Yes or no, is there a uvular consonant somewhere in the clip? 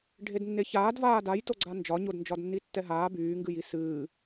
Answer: no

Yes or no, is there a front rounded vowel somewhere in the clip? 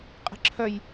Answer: yes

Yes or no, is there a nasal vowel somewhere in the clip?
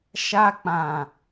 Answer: yes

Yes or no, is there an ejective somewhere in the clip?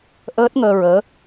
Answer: no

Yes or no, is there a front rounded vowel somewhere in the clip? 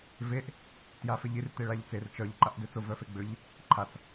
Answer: yes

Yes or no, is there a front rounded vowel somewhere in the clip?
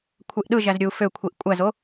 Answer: yes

